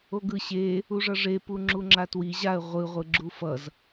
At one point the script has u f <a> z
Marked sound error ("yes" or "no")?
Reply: yes